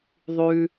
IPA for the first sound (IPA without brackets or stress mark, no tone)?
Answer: ðˤ